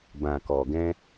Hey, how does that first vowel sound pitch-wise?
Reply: low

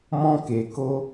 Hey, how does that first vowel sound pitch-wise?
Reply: high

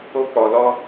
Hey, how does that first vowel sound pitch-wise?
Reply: high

